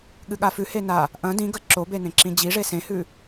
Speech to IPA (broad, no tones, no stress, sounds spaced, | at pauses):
ɠ ɨ ɠ a f ʉ h e n a | ʔ ɐ̃ d ĩ ɡ ɐ ǁ o b e n ẽ ǁ ĩ d͡ʑ i ʐ e s ẽ h ʉ